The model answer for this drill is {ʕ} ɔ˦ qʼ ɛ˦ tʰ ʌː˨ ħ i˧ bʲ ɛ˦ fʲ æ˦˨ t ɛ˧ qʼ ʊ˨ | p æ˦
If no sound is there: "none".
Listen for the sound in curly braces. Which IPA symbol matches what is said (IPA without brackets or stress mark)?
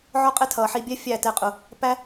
ʕ